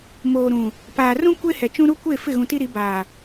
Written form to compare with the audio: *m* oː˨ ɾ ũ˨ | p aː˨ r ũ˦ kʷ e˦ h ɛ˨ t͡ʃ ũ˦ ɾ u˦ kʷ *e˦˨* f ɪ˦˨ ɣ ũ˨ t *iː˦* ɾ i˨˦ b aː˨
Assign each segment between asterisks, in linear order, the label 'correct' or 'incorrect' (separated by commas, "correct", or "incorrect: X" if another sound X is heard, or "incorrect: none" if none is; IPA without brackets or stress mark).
correct, correct, incorrect: i˦